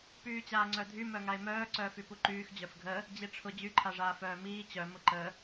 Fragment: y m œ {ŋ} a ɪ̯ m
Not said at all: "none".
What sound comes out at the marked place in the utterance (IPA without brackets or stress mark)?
ŋ